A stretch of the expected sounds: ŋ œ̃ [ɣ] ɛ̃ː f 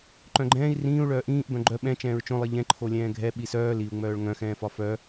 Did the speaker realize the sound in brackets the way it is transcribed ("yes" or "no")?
no